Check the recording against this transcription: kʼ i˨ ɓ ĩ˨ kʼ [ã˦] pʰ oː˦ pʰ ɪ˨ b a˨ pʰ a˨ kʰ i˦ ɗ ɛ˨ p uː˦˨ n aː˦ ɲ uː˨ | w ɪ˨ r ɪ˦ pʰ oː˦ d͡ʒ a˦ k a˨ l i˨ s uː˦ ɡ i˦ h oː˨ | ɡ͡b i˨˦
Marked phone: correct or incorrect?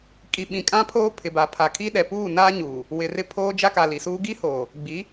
correct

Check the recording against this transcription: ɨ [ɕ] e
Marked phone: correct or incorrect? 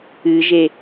incorrect: ʒ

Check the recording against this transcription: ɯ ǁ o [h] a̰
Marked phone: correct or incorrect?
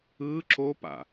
incorrect: p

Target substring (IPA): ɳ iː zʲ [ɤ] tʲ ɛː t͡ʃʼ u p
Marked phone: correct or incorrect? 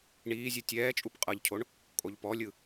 incorrect: ɯ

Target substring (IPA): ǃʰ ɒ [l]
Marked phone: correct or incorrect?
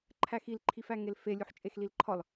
correct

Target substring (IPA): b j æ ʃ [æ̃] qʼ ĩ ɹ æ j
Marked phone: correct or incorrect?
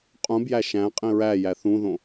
correct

